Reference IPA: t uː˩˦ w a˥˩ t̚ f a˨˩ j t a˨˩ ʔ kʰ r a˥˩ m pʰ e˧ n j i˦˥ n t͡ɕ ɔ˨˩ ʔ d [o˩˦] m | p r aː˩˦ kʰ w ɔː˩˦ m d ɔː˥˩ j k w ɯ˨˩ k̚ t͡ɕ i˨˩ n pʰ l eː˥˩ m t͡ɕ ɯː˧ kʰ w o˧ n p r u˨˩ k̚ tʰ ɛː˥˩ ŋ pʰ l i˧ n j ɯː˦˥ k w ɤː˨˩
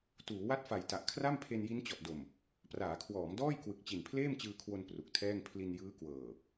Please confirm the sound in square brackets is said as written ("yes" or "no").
no